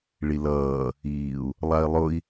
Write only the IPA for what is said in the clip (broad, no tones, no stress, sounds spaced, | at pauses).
ɭ i l ʌː | iː u̯ | lˠ a i̯ lˠ ʊ i̯